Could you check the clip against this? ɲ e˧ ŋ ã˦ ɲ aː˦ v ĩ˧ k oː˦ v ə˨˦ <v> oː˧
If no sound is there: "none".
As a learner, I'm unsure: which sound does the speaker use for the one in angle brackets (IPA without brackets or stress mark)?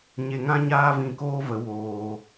w